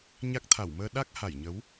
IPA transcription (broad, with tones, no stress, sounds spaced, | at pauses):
ɲ a˦˥ k̚ t̪ʰ a˧˩ w m əː˧ ɗ a˦˥ k̚ h a˧˩ j ɲ ə˨˦ w